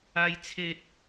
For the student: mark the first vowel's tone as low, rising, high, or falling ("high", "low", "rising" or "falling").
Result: high